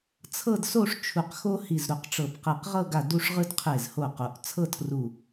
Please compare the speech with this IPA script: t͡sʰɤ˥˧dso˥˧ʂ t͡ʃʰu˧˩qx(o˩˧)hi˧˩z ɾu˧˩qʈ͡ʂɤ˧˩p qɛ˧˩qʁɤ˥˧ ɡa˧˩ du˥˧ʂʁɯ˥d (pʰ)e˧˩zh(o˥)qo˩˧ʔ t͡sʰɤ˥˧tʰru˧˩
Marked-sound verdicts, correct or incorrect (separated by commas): incorrect, incorrect, incorrect